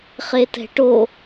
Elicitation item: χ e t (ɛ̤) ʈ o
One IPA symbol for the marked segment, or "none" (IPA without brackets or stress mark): ɛ̤